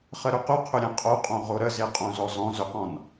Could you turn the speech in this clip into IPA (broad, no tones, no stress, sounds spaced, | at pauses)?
χ ə ɾ ʏ q ʏ qʰ ʏ ɾʲ ẽ qʼ o qʼ õ ʁ o ɾ ə z e qʼ õ z ɔ z ɔ̃ z ʏ q ɔ̃ n